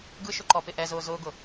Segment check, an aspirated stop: absent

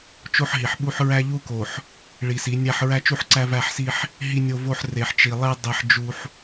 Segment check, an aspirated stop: absent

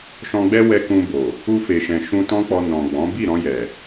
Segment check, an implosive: absent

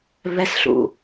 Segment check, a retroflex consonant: absent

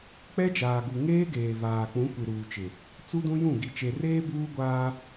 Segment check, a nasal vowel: present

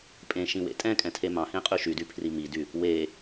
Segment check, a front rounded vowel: present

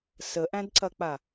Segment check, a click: present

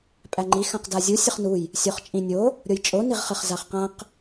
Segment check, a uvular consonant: present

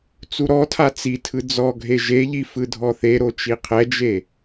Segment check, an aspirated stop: present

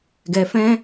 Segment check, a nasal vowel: present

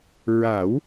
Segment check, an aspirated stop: absent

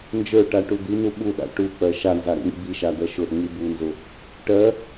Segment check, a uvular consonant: absent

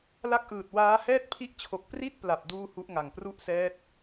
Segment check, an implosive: absent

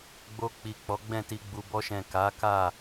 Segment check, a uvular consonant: absent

